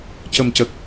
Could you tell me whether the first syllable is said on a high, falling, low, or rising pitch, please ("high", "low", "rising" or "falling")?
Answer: low